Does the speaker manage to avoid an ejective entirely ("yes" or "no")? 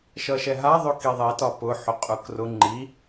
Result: no